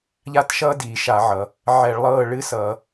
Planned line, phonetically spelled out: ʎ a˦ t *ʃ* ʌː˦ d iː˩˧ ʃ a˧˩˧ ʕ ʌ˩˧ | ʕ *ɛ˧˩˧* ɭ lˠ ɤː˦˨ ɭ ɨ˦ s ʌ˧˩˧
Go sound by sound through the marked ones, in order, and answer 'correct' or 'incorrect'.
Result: correct, correct

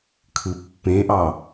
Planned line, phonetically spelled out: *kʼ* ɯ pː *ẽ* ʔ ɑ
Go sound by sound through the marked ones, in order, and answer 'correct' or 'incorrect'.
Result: incorrect, correct

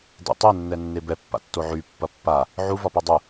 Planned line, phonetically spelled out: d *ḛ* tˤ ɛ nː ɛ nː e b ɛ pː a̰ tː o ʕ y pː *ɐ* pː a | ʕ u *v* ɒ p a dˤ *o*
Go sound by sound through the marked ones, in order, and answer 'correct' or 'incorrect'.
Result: correct, correct, correct, incorrect

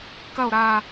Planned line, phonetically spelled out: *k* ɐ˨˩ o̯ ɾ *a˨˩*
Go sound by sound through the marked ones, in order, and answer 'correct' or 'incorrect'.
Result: correct, correct

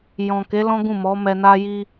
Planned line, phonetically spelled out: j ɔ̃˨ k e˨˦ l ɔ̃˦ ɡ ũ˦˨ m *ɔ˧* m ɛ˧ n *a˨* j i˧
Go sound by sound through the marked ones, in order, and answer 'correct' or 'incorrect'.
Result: incorrect, incorrect

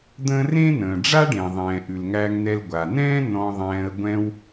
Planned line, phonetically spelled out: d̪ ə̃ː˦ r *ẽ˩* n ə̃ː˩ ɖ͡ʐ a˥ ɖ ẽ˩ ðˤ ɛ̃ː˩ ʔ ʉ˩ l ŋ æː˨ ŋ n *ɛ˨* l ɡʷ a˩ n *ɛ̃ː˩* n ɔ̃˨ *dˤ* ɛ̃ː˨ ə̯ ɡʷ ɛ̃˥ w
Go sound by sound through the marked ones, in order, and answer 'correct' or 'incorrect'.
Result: incorrect, correct, incorrect, incorrect

